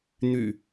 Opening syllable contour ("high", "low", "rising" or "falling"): low